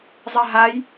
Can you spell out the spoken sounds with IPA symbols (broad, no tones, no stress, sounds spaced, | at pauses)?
zˤ ɛ ɦ a j